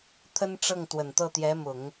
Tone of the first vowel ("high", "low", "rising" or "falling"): high